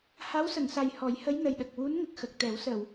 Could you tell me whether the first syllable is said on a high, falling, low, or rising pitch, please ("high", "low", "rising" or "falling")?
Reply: rising